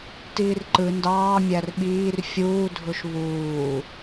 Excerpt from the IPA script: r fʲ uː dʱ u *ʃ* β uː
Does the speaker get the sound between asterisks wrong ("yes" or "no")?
no